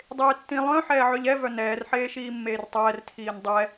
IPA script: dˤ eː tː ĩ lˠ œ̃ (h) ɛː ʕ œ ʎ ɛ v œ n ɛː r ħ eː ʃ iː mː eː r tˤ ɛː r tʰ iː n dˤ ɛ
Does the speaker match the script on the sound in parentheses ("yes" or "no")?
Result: no